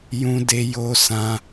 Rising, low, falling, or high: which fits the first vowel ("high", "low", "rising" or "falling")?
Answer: high